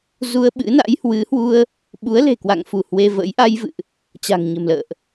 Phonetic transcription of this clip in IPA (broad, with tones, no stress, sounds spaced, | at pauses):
z u˧ ə̯ ɓ ɨ̰˧˥ n a̰˧˥ j h w ɨ˨˦ h w u˧ ə̯ | ɓ u˨˦ ə̯ l e̤˨˩ k w a̰˧˨ ŋ f u˧˩ h w e˧ v ə̰˧˥ j ʔ a˧ j v ɨ̰˧˨ ʔ | t͡ɕ a̤˨˩ ŋ ɲ ə̤˨˩ m l ə̰ː˧˨ ʔ